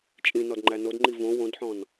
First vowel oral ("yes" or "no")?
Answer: no